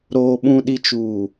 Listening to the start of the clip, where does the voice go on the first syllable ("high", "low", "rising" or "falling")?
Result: low